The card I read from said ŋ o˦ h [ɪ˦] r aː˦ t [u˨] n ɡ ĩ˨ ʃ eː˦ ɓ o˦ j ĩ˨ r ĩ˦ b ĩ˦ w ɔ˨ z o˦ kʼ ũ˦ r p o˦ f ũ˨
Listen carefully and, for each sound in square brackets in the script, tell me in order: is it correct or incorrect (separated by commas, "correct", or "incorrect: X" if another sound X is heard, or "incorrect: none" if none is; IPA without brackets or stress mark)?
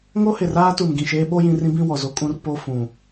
incorrect: ɪ˨, correct